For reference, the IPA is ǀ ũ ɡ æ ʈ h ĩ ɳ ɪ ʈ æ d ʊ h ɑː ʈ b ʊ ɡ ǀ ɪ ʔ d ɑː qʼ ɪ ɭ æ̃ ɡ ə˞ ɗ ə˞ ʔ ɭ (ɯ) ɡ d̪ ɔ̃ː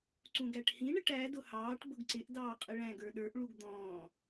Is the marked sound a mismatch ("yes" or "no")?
yes